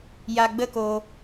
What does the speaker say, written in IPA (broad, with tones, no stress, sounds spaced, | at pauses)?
j a˧ ɡ͡b ə˦ k o˧